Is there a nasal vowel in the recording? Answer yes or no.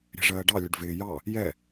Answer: no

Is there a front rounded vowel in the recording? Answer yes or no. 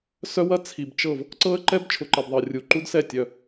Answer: yes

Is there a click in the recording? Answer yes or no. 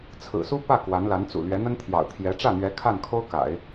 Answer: no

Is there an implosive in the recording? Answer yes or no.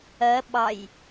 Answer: yes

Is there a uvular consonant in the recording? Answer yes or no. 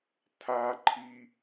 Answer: no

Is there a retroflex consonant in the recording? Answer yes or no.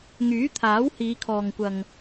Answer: no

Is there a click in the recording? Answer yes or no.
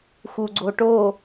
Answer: yes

